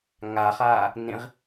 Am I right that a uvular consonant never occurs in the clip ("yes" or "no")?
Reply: no